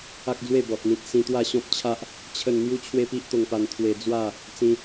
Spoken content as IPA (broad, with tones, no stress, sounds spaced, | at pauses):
a˦ k̚ d͡z w e˥˧ b ɔ˨ t̚ n̪ ĩ˨ t̚ s ĩ˧ t̪ w a˥˧ ɕ ɔ̃˦ p̚ t͡ɕʰ a˦ ʔ | t͡ɕʰ ə˥˧ n n̪ j u˦ t͡ɕʰ w e˦ p i˦ ʔ t̪ o˧ ŋ p a˧ n t̪ʰ w e˧ d͡z w a˥˧ | t͡s ĩ˧